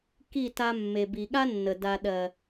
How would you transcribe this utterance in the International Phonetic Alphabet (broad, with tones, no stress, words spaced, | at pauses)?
ki˦˨ta˧ mːe˨bi˨ɠa˦nːə˨ da˨ɗɜ˨